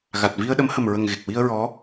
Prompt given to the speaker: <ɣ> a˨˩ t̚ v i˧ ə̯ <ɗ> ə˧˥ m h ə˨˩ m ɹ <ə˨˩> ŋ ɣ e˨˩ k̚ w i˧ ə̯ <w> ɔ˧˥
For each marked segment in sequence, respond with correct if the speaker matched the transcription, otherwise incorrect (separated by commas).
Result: correct, correct, correct, incorrect